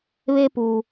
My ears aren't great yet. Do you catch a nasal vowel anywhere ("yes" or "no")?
no